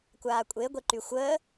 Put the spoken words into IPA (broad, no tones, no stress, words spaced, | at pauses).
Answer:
kʷaːkʷʼeɡʷeǃy xʷəː